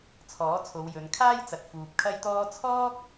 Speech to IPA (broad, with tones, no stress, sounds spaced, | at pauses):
t͡sʰ ɔː˨˥ t͡sʰ o˨˧ w j ɵ˨˧ n kʰ aː˥ j t͡s ɐ˨ t̚ f uː˨ p̚ kʰ ɐ˥ j t̪ ɔː˥ t͡sʰ ɔː˥ k̚